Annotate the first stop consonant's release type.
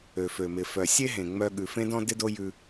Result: implosive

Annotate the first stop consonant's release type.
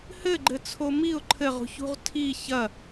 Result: click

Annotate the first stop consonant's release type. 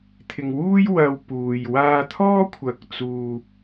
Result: aspirated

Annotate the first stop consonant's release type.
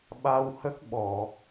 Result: implosive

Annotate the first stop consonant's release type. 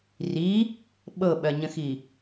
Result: implosive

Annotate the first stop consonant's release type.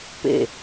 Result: plain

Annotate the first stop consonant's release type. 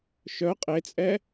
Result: ejective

